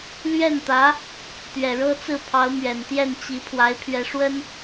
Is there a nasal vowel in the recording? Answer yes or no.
no